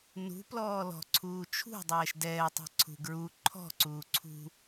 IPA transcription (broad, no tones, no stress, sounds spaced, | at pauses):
n ṳ p l ɔː l ɔ̤ ǀʰ uː t͡ʃʰ ṳ dˤ ɛː ʃ d ɛː tˤ e̤ ǀʰ ṳ ɡ ɹ u ǃʰ ɔ̤ ǀ uː ǀʰ ṳ